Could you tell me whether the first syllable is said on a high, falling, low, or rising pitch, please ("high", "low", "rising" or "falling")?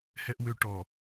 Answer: low